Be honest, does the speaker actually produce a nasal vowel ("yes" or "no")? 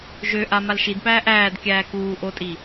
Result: no